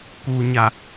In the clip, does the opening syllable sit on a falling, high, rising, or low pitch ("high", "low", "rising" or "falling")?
low